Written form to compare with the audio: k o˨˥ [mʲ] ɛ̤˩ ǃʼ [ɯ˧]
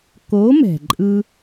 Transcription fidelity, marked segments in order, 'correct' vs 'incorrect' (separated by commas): incorrect, correct